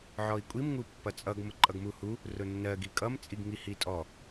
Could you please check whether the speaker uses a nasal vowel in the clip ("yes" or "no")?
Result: no